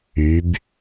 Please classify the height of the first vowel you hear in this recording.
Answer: high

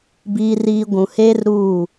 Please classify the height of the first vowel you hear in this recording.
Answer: high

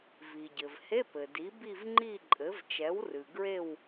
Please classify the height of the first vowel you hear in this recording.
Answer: high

